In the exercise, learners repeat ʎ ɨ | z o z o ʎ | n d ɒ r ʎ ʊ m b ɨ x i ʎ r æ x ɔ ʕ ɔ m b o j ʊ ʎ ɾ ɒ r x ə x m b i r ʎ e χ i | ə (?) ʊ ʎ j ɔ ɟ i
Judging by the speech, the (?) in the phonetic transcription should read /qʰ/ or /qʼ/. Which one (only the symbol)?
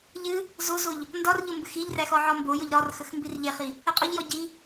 qʼ